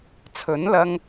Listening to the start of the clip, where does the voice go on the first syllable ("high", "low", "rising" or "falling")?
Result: rising